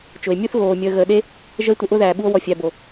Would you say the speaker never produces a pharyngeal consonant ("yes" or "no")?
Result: yes